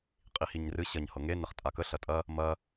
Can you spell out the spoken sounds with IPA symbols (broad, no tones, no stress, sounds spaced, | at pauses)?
qʼ i h i ɲ r ɨ ɕ ɐ ɲ h ɤ ŋ e n ə χ tʼ a k ə ɬ ɐ tʼ ɐ | m ɐ